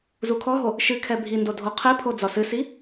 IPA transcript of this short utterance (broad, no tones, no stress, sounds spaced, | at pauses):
z u kʰ ɔ ɦ o | ʃ ɨ kʰ ɛ bʱ i n d o dʱ o qʰ ɛ pʰ o d͡z ɒ s ɨ s i